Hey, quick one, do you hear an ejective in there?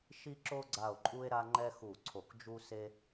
yes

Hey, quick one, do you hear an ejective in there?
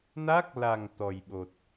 no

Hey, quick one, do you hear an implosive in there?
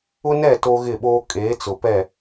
yes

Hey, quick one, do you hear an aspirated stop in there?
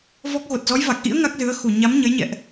no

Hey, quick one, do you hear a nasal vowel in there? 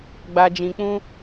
yes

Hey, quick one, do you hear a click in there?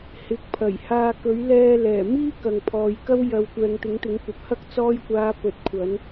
no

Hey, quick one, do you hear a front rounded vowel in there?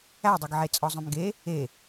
yes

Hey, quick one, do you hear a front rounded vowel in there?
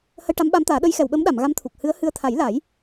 no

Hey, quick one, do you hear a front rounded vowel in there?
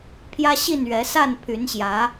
yes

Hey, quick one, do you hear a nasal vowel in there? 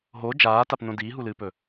yes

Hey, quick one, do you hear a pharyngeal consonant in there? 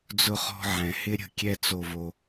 yes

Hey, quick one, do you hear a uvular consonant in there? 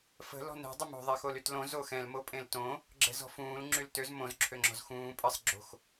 no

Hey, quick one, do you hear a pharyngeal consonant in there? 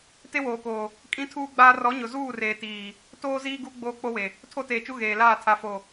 no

